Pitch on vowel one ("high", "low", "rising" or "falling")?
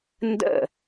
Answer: falling